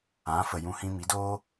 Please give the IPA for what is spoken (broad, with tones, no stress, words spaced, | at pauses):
ã˨˦fə˨ jũ˦hĩ˦ mi˨˦doː˦